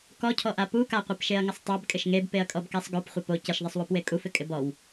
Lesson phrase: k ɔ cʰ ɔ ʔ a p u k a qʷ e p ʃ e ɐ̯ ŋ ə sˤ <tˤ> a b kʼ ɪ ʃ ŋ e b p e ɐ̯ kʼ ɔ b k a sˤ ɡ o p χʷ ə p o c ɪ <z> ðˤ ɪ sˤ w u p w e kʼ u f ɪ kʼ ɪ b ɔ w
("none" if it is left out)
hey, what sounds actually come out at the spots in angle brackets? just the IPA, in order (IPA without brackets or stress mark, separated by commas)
tˤ, ʃ